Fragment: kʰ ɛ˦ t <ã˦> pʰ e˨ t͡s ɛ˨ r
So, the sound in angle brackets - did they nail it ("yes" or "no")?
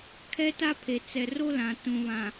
no